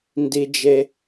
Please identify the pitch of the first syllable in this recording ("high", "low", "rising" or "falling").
low